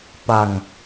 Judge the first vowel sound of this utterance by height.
low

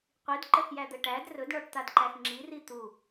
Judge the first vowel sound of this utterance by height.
high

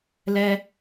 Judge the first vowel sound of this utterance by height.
mid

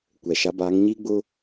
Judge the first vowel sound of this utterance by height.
mid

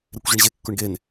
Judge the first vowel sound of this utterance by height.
mid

